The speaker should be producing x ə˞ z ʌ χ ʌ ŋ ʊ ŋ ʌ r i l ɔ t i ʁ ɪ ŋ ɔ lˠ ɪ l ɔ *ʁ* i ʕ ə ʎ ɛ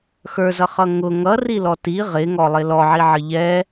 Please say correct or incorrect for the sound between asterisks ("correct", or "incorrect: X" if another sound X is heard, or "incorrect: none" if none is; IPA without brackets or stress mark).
incorrect: ʕ